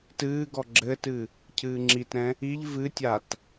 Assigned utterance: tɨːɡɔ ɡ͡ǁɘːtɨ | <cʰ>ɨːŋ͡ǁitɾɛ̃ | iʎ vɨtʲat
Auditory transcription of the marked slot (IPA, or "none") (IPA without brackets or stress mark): cʰ